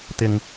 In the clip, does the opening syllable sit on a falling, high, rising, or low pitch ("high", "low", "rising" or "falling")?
low